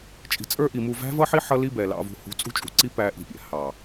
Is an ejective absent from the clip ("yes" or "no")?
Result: no